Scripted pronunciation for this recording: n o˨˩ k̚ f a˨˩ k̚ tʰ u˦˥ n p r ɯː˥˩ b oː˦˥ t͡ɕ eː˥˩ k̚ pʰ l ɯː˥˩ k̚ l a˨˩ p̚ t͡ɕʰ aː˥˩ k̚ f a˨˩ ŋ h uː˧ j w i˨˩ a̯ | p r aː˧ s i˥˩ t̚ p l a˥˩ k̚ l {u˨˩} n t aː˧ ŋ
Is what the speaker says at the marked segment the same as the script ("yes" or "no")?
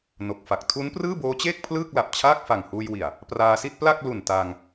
yes